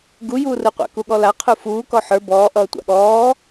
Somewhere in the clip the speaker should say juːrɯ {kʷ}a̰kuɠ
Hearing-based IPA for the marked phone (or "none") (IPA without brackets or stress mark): qʷ